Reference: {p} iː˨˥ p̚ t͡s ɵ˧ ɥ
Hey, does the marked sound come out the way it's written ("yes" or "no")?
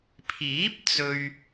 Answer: no